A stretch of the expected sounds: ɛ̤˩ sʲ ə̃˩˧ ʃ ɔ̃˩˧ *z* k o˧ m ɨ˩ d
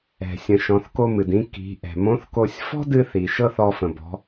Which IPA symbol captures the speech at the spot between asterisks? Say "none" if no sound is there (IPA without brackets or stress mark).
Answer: θ